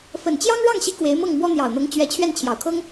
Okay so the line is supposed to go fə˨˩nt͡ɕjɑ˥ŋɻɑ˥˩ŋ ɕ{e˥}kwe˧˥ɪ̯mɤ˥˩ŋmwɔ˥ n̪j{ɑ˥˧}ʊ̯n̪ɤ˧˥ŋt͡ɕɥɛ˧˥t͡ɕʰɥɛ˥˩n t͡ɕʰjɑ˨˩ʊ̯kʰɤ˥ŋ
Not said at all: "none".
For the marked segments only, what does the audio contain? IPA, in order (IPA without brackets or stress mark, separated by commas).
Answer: i˥, ɑ˨˩